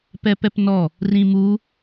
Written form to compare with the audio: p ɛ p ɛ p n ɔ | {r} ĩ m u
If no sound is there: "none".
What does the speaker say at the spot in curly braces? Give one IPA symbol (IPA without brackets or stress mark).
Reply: r